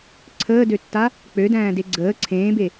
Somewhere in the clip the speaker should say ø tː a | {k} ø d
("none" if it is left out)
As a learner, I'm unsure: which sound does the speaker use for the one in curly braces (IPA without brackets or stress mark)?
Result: k͡p